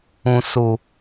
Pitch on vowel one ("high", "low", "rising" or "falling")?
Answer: low